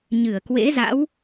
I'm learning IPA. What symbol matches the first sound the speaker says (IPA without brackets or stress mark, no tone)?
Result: ɲ